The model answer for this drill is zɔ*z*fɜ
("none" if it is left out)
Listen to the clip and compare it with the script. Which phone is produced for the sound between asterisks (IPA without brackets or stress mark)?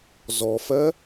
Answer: none